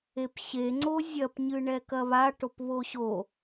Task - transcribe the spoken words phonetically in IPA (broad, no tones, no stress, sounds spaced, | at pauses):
e p ɕ e ŋ͡ǀ o zʲ ɐ p ɲ ɨ ɳ ɛ k ɐ β a ʈ o p β o ɕ o